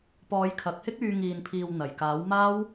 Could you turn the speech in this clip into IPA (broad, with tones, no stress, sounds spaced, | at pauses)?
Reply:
p ɔː˨˧ j kʰ ɐ˨˥ k̚ h ɪ˥ k̚ yː˧ ŋ iː˨ n pʰ iː˨ w n̪ ɐ˨˩ j k aː˨˥ w m aː˥ w